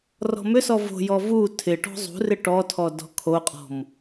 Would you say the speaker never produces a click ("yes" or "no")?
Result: yes